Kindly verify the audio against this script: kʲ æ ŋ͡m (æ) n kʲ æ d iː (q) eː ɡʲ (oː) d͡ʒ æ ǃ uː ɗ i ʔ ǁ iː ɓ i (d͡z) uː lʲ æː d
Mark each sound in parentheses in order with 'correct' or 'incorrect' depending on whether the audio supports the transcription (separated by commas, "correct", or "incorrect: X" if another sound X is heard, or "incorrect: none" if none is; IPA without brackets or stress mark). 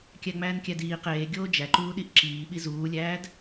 incorrect: æː, correct, correct, incorrect: z